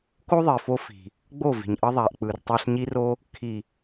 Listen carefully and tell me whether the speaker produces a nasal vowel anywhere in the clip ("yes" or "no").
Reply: no